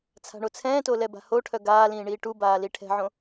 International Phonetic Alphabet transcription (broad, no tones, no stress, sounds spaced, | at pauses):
t͡sʰ a̤ ɳ o t͡sʰ ɛ̃ː t o l ɛ b a̤ h o ʈʰ œ ɡ aː l ĩː ɳ iː ʈ u b aː l i ʈʰ ɛ̤ ʕ õ